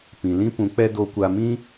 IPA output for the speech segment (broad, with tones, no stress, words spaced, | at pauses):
pĩ˨lĩ˦pũ˨˦k͡pɛ˦ do˧kʷa˧ mĩ˦